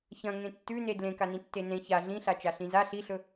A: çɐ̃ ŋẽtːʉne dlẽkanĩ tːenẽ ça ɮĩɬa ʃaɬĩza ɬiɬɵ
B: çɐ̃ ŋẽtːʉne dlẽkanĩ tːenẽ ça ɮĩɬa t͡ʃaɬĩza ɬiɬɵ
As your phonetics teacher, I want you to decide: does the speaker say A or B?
B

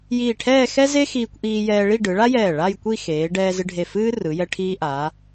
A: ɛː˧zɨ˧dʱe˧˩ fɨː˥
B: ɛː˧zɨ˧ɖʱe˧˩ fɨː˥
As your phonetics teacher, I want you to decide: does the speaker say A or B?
B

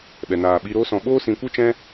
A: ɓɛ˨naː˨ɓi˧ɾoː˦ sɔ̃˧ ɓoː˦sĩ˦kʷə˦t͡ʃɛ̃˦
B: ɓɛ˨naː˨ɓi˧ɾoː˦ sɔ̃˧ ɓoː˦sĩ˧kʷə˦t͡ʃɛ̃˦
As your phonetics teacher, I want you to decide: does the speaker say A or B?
B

